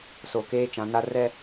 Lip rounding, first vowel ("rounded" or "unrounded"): rounded